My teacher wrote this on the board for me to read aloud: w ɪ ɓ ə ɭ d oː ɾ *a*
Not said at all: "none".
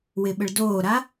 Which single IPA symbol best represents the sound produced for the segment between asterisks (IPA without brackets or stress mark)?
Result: a